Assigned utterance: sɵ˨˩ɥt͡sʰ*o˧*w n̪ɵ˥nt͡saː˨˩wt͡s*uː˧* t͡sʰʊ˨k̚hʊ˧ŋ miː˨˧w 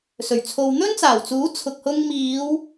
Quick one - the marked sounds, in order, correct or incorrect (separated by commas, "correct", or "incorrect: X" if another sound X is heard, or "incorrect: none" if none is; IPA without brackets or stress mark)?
incorrect: o˨, incorrect: uː˨˥